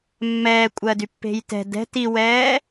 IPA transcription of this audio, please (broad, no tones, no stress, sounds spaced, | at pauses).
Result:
mː ɛː kʷʼ ɜ d y pː e̤ j t ɛ̤ d ɛ̤ t i w ɛː